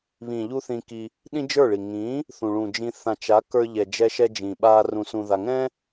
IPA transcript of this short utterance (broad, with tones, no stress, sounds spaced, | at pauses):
β ĩ˨ ʎ u˦ θ ĩ˧ k i˧ | ɗ ĩ˦ d͡ʒ ə˞˦˨ ɭ i˨ ŋ ĩː˨˦ | θ ũ˨ ɭ ũ˨ d͡ʒ ĩ˧ θ ã˨ t͡ʃ a˨˦ k ə˞˧ ʎ ɛ˨ d͡ʒ ɛ˧ ʃ ɛ˧ d͡ʒ ĩ˨ ɓ aː˧ r ũ˧ s ũ˧ ð a˧ ŋ ɛ̃˦